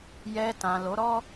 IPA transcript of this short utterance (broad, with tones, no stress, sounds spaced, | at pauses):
j ɛ˧ t ã˨ l o˨˦ ɾ ɔ˦